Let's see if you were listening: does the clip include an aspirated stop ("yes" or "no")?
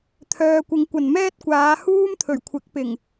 yes